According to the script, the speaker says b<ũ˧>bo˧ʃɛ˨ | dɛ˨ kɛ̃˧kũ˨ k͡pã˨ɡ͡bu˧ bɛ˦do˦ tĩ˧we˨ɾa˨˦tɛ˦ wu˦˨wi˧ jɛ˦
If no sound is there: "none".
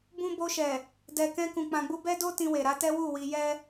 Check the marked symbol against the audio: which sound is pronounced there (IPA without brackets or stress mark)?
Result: ũ˧